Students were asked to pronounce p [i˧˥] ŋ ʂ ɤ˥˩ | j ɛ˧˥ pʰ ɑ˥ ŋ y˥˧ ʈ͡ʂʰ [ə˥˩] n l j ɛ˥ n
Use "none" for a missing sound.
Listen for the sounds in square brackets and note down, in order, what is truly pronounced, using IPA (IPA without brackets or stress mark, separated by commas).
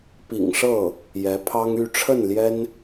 ḭ˨˩, ə˥˩